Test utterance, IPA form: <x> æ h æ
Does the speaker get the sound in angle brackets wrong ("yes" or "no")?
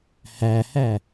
yes